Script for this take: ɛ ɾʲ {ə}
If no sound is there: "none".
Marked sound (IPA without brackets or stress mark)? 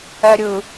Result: ɯ